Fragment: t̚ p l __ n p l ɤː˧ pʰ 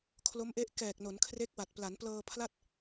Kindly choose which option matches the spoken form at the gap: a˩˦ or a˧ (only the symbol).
a˩˦